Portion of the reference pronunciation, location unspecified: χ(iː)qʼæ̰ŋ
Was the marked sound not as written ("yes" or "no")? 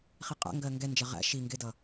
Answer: yes